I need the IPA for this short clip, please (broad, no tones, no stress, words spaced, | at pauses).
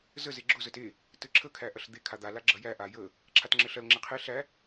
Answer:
zə zeɡ͡ǁʊ zəte | tɘǁʰə kʰæʔɐɬd̪e kʰad̪a laɡ͡ǁɐjæ ʔajə | ǁʰatŋ͡ǁɘɬɐl ŋ͡ǁeqʰe ɬæ